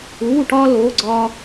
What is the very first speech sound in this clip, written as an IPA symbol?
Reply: uː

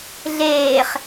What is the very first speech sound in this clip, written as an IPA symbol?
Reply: ɮ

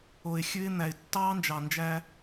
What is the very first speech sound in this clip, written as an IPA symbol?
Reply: o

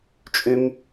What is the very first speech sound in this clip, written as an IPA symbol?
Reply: t͡ʃʼ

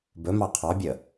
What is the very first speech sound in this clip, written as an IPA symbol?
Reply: b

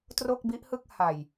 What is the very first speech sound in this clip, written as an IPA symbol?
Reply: t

